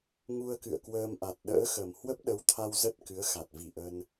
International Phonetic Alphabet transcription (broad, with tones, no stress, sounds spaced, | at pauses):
ŋ u˧ ə̯ k ɨ̰˧˨ ə̯ k w əː˧ m ʔ a˨˩ t̚ ɗ ə̰ː˧˥ x ə˨˩ m h w ə˦˥ p̚ ɗ ə˨˦ w t̪ʰ a˧ w z ə˦˥ t̚ k ɨ˨˦ ə̯ x a˨˩ t̚ v i˧˩ ʔ ə˧ n